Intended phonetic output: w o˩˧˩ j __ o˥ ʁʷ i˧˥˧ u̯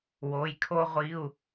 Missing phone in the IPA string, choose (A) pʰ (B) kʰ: B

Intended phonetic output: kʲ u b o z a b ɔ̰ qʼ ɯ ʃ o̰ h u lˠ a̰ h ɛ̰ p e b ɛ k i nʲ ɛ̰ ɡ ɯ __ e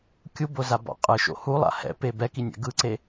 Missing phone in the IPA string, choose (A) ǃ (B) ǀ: B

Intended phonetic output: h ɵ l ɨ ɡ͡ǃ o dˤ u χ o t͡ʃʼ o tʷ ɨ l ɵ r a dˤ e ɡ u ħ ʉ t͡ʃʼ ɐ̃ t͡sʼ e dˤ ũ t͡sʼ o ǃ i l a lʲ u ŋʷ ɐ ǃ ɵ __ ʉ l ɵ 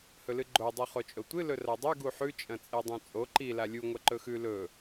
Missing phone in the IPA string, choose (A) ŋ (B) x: B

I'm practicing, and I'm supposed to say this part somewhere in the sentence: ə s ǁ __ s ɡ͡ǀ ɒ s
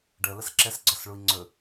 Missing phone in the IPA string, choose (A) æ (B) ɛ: B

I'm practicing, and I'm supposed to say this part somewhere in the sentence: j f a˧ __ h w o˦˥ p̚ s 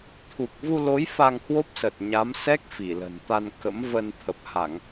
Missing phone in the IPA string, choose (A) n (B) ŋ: B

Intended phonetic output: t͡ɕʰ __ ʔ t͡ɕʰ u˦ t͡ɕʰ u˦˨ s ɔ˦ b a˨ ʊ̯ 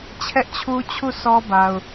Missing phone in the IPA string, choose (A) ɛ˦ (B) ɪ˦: A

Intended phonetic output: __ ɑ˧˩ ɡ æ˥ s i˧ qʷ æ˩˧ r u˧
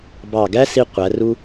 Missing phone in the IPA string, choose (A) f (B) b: B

